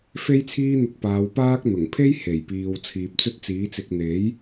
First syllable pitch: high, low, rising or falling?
high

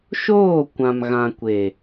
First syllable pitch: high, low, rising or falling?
falling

